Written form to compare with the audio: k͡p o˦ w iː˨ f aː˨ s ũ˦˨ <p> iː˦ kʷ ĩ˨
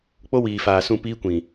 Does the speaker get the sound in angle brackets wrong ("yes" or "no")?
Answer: no